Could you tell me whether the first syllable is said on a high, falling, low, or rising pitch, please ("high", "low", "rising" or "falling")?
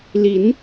rising